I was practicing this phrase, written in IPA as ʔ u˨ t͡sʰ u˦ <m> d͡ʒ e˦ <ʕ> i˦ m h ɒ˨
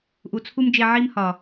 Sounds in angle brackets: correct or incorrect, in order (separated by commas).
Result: correct, correct